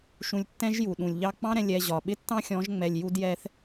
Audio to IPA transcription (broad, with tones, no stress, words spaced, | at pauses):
ʃũ˧lʲ tːɛ̃˦ʒ ju˨ɗũ˨lʲʎɑ˦ k͡pɑ̃˦ɾɛ̃˧ lʲɛ˧ʑɒ˨ ɓɪ˦tːɑ̃˦xʲɔ̃˨˦ʒ ŋ͡mɛ˨lʲ ju˦djɛ˦θ